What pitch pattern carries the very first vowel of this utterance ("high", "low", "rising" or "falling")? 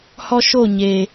high